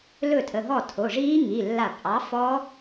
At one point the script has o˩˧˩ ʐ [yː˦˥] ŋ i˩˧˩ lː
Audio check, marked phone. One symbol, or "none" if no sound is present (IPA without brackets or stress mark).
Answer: iː˦˥